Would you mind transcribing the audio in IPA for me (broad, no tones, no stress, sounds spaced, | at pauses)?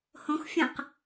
h õ x fʲ ə̃ q